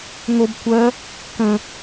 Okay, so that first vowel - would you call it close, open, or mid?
mid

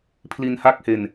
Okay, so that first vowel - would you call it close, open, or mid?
close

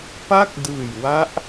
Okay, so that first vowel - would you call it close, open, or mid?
open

